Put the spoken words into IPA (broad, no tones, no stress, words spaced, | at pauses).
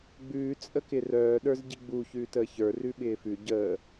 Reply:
ɡ͡bʉːt͡sʼə kɪrœːɗə˞z ɟiɡ͡bu çʉːtəːçə˞ rʉɓɪːfʉ ɟəː